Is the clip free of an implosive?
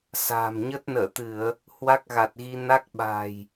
no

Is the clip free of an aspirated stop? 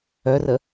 yes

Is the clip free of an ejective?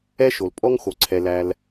no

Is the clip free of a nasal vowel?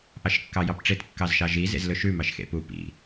yes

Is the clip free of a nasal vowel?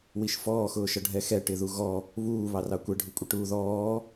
yes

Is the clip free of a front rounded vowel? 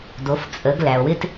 yes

